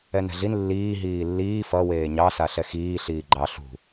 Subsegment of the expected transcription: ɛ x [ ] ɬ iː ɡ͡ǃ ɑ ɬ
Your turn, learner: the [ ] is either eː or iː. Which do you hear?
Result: iː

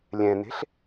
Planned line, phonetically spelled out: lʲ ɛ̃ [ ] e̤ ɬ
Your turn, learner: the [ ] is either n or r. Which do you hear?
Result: n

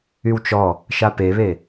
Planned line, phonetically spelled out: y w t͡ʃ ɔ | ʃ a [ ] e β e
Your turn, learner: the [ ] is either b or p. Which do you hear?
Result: p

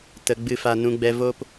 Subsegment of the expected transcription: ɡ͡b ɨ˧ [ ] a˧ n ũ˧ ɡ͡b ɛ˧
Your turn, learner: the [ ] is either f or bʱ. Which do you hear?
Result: f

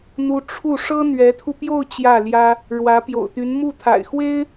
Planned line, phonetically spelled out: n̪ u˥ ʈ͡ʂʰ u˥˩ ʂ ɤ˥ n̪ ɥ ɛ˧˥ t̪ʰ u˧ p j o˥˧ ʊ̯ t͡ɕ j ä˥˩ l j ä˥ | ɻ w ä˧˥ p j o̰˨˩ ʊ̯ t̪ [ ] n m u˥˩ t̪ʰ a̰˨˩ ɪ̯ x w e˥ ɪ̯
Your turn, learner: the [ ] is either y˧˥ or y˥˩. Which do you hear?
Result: y˧˥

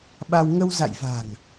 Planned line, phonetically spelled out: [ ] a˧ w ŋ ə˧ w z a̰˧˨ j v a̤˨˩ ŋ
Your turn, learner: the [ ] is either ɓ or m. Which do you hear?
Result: ɓ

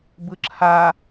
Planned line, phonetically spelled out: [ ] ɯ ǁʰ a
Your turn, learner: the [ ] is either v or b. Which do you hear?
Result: b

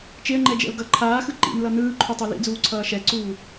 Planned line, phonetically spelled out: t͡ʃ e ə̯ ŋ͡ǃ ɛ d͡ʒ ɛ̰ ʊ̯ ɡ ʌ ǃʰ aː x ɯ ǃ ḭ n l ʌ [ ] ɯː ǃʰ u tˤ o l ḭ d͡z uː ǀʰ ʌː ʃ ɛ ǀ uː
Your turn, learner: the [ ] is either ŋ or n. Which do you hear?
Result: n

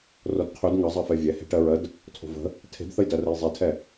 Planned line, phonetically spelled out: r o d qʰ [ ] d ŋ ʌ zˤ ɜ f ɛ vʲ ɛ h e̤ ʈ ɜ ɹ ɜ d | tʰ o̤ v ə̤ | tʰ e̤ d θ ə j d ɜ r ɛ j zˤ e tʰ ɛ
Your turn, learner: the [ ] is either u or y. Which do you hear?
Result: y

